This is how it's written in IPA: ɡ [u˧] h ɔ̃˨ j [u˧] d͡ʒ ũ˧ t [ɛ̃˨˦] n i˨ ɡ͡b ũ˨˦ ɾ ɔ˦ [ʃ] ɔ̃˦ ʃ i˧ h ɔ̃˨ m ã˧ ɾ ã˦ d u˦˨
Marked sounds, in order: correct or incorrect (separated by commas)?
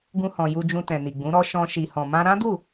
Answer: incorrect, correct, incorrect, correct